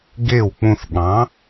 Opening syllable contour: falling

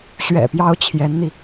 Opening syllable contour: low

